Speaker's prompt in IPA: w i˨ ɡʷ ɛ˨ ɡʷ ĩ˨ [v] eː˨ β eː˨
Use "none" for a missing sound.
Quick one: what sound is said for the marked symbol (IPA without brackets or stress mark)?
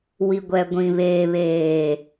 β